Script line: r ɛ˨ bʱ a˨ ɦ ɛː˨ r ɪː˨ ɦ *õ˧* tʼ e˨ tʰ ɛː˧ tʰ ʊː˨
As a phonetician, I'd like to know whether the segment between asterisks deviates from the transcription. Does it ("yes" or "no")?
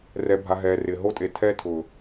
yes